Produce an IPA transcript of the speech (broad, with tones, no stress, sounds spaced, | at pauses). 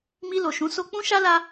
m i˧ l o˨ ʃ ũ˨˦ s o˧ k͡p ũ˦ ʃ a˦ l a˦